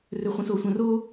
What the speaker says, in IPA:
r ø χʷ ẽ s o sʷ œ̃ r o

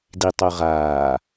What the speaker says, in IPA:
d i tˤ o ʁ aː

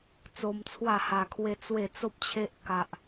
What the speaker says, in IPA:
t͡s o˧ m t͡sʰ w a˥˧ h a˧ kʰ w e˦ t͡s w e˥˧ t͡s o˦ p̚ t͡ɕʰ e˦ ʔ k a˦ ʔ

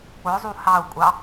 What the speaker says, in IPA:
k͡p ʊ zˤ u h ɑ u̯ kʷʼ ɑ

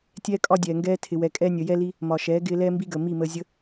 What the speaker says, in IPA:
tʲ ɛː˦ kʼ ɒ˦ dʲ ɛː˨ ŋ ɡ ɛː˦ tʰ ɪ˨ w ɛ˨ kʼ ɛː˧ nʲ əː˨ j ɛ˦ l i˦ | m ɒ˨ ʃ ɛː˨˦ ɡ ɪː˧ l ɛː˦ m b i˦ ɡ əː˨ m i˦˨ m əː˧ zʲ ə˦

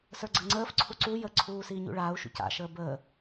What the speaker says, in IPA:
s ə˞ ɡ͡ǀ ə ŋ͡ǀ əː f ǀʰ u ǀ u j ə ǀʰ uː s iː ɲ ṵ ɭ aː u̯ ʃ ṵ c a̰ ʃ əː b əː

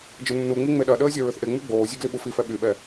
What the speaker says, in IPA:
d͡ʒ ə nː u ŋ͡m i ŋ͡m e ɗ ɐ ɗ əː zʲ ɐ ɹ ʏ θ ʔ e ŋ͡m y ɡ͡b oː zʲ ø ɡ l i ɓ u f i f ɛ ɓ y ɓ ɛ

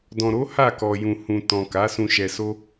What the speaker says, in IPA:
d ɔ̃˨ ɾ o˨˦ h a˦˨ k ɔ˨ j ũ˨ h ũ˨ t ɔ̃˨ k a˨˦ s ũ˧ ʃ ɛ˧ s o˦

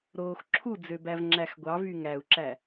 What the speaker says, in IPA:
ɾ oː x ǁʰ u d͡z ø b æ v ŋ͡ǁ æ x ɡʷ ɑ v y ŋ æ u̯ ǁ æ

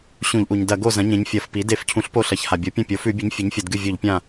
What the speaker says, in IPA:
ɕ ũ˧˩˧ ʎ ʔ u˩ ɲ d ɐ˧˩˧ ɡ o˥˩ z ɐ̃˩˥ ɲ ẽ˩˥ ɲ fʲ ɐ˧˩˧ f p i˩˥ d e˧˩˧ f cʰ ũ˩˥ ɬ p o˥˩ ɬ ɐ˩˥ ç h a˩ bʲ o˩˥ pʲ ɐ̃˥˩ pʲ o˩˥ f ʉ˧˩˧ bʲ ɨ˩˥ ɲ fʲ ɨ˩˥ ɲ fʲ ɐ˧˩˧ d ɡ ɨ˥˩ vʲ o˧˩˧ ʎ pʲ ã˥˩

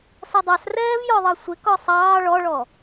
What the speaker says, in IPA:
s ʌ dˤ ɑ s r ɛː v j ɔ ðˤ ʌ sʷ ɪ k ɔ sˤ ɑː ɭ ɔ ɭ ɔ

